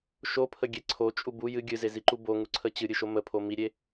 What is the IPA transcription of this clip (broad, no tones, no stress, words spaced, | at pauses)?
ʃopʰəɡʲe ǀʰot͡ʃʼu bu jɨ ɡʲɨzeziǃu boŋuǀʰə t͡ɕɨɾʲɨʃo məpʰo miɾʲe